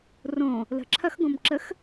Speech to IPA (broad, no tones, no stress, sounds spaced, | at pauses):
r õ | l ə̤ ǁʰ ɐ x ɡ õ m ǁ ə x